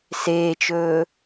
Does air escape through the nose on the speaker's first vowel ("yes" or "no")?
no